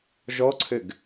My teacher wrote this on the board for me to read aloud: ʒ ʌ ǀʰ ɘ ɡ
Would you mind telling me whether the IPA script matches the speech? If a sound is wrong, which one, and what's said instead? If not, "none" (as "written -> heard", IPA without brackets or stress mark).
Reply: ʌ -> ɔ